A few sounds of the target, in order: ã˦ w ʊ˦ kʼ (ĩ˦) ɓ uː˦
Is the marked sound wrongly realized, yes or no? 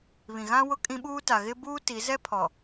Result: no